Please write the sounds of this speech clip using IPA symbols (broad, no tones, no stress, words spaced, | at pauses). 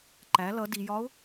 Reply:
ǃæ lʌ dijɒʊ̯